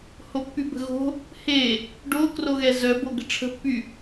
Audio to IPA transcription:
h o pː y b ə̤ ɣ o̤ | h e | ɖ o k r o ɣ ɛ z œ b o ɡ ə̤ ʈ͡ʂʰ ə̤ pː y

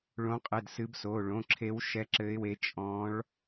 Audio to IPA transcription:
ɭ õ˨˦ qʼ ɘ˩˧˩ d s ɨ˨˦ b s o˩˧˩ ɭ õ˩˧˩ ǁʰ e˨˦ w ʃ ɛ˨˦ ǁ ɘ˨˦ ɪ̯ w e˨˦ t͡ʃʼ ɔ̃˨˦ ɭ

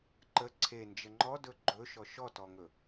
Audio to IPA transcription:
ǃ ə ǀʰ e n d͡ʒ ə ŋ͡ǃ ɔ d ɵ ɡ͡ǃ ɵ ʃ ɔ ʃ ɔ t ɔ ŋ ɵ

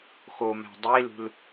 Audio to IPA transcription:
x o m æ̤ dˤ i l ṳ l

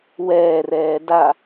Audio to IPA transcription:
w ɛː r ɛː d a

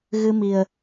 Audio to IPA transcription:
ɣ ɨ˧ m i˨˩ ə̯

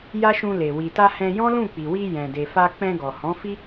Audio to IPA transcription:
j a˦ ʃ ũ˧ l e˨ w i˨ t a˧ h ɛ̃˧ j ɔ̃˦ l ũ˦˨ k͡p i˨ w i˧ j ɛ̃˨ d e˨ f a˧ k͡p ɛ̃˧ ɡ ɔ˨ h ɔ̃˨˦ f i˦

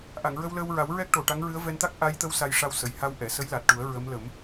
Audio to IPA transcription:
ʔ a˨˩˨ ŋ ɹ ə˧ w l əː˧ w ɹ a˨˩˦ w ɹ ɛ˦˥ k̚ ʈ o˨˩ ʈ a˧˥ ŋ ɹ ɨ˧˥ ə̯ v ɛ˧ n t̪ a˦˥ k̚ ʔ a˧˥ j t̪ ə˧˥ w s a˧ j ʂ a˧ w s ə˨˩˨ j h a˧ w ʔ ɛ˨˩˨ s ə˧˥ j l a˨˩ t̚ ʈ u˨˩˦ ə̯ ɹ ə˧˥ m l ə˨˩˦ m

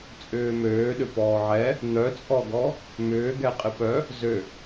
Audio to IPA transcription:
t͡sʼ ʏː m øː ɗ ʏ p ɔː ʕ ɛ | n̪ œ t͡sʼ ɔ ɡ ɔ | m ʏː ɡ ɛ qʼ ɪ p œ | z ø

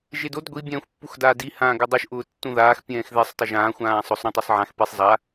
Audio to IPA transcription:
ʒ e d o d ɡʷ i bʲ ɛ̃ː xʷ pː u x d aː d i h ãː ɡ ɪ dˤ u ʃ ʔ ʊː tː ũ ð aː x pʲ ɛ̃ː x ð e sˤ tˤ ʊ ʒ ãː xʷ ãː sˤ ʊ sˤ ɾ ũ tˤ u sˤ ʕ ã x p i sˤ zˤ a

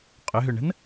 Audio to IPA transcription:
qʼ ʏ ɦ ʏ ɳ ə̤ n

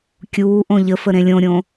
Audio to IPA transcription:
kʲ uː ʔ õ ʎ ə f ə ɾ ẽ lʲ õ ɾʲ õ

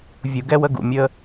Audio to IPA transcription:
vʲ u˨ ɡ ɛ˦ w ə˦ ɡ ṵ˨ mʲ ə˧

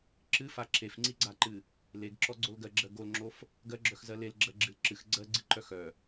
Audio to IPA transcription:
ǁ ɨ f a ǁ e f ŋ͡ǀ i ɡ͡ǀ a ǃ ɨ | l e ɡ ǁ ɔ ɡ͡ǀ o l ɡ ɜ ɡ͡ǁ ɜ ɡ o l ŋ͡ǁ o f | ɡ ɜ ɡ͡ǁ œ x z ɜ l e l ɡ͡ǁ ɜ ɡ͡ǁ ɨ l ǁ ɨ x ɡ͡ǀ ɜ ɡ͡ǀ ɨ ǃ œ x œ

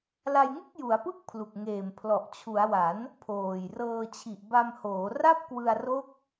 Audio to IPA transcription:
l a˧ j ŋ ɯ˥˩ k̚ j u˩˦ a̯ p ɯ˥˩ k̚ pʰ l u˨˩ k̚ ŋ eː˨˩ m pʰ l ɔ˨˩ ʔ t͡ɕʰ u˩˦ a̯ w a˩˦ n | pʰ oː˨˩ j r ɤː˧ t͡ɕʰ i˨˩ ʔ b a˧ m h oː˩˦ r a˥˩ p̚ k w ɯ˧ a̯ r o˦˥ k̚

